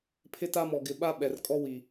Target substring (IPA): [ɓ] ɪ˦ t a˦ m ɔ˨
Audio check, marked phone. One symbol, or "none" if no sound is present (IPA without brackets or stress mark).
pʰ